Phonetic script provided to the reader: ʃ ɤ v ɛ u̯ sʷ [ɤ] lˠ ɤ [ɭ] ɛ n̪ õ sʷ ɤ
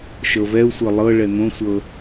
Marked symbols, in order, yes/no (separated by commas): yes, yes